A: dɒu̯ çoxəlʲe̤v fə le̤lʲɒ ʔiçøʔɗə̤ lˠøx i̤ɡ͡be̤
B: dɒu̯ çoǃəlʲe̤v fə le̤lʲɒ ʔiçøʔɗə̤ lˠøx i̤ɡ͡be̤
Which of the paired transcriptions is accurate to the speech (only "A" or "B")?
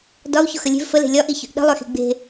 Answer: A